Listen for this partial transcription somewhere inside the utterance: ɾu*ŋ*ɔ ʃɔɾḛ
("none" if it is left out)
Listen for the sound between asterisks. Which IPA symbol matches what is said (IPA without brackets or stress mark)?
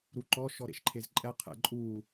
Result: ǃ